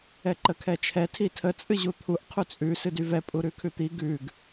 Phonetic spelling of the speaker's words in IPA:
ɛǃəkʰɛt͡ʃʰɛ tʰitʰə t͡sʼɨʑut̪ʰuʔ qʰut͡sʼʉ sɨdyvɛ pʼuɾʉkʰʉt̪i ɡʉɡ

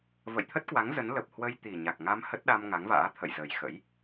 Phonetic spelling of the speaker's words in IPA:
və̰˧˨jt̪ʰə˦˥t̚kwa˨˦ŋ zə˨˦n lə˨˩p̚hwə˧j t̪i˨˩ɲa˨˩k̚ŋa˧m hə˦˥t̚ɗa˧m ŋa˨˦ŋva̰ː˧˥t̪ʰə̰˧˨j zə˨˩jxə̰˧˥j

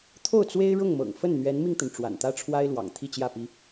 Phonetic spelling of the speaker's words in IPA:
t̪ʰo˥˩ʊ̯t͡swe˥ɪ̯ɻʊ˥˩ŋmɤ̰˨˩ŋ fə˥˩nn̪ɥɛ˧˥nmi˧ŋt̪ə˩n ʈ͡ʂwa̰˨˩nt̪ä˥ʈ͡ʂʰwa˥ɪ̯lwɑ̰˨˩ŋ t̪ʰi˥˧t͡ɕjä˥˩pi˥

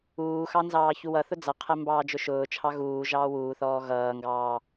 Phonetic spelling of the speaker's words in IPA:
uːxɑ nzɑːçuwʌθʊ d͡zʌqʰɛ mbɑːd͡ʒʊʃʊːt͡ʃʰɑ ɣuː ʒɑːwuːθɔː ɣʌːŋɡɑː

